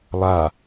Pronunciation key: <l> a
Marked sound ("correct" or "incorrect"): incorrect